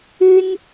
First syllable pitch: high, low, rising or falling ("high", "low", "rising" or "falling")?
high